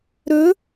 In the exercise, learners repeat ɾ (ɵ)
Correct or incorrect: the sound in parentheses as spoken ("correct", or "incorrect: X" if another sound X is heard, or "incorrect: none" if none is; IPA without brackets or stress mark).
correct